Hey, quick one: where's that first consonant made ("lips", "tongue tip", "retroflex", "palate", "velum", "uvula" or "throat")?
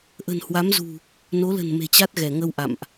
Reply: throat